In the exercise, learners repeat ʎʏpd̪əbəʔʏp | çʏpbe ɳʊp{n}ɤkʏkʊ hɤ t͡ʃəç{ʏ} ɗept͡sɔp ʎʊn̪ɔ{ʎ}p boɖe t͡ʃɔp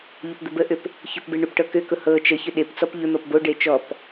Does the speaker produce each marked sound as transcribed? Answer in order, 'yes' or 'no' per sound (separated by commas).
no, yes, no